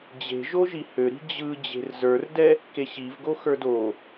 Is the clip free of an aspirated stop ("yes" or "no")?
yes